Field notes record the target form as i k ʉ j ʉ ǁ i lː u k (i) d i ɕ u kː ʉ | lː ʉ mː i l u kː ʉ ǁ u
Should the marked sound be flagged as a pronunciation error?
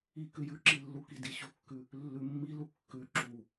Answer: no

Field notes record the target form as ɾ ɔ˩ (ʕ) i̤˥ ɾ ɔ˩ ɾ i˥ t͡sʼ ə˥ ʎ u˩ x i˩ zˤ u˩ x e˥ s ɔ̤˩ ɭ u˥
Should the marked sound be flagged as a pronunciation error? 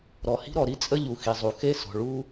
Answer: yes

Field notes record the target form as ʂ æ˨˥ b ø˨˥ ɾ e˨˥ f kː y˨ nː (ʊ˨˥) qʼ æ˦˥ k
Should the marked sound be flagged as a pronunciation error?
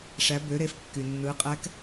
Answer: yes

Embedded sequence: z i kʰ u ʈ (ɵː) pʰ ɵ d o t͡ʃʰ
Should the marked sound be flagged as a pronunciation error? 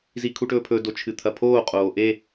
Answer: no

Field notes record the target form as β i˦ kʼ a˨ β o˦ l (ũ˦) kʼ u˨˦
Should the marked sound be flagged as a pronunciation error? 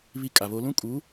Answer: no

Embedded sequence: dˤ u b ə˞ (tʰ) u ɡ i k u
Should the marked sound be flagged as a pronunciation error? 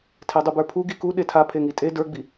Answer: yes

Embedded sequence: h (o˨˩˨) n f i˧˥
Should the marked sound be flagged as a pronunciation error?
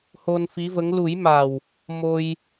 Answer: yes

